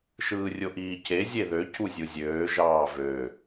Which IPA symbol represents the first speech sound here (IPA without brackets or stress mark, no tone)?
ʃ